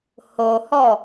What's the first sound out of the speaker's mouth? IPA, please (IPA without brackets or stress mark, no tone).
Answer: h